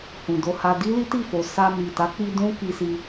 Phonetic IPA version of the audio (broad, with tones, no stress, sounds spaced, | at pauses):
h ũ˨ d o˧ h a˧ d i˦ l i˦ t i˦˨ f o˨ s a˧ m i˨ t a˨˦ k͡p i˧ d ũ˦ k i˧ s i˧